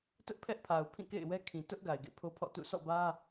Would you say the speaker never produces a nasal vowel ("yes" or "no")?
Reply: no